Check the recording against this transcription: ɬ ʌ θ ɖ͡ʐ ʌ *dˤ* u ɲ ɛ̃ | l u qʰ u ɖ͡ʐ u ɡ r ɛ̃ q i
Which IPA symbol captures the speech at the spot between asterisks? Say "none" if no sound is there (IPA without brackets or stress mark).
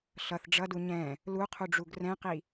d